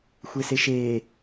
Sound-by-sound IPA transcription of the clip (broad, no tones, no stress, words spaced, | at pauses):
xʷeseʃeː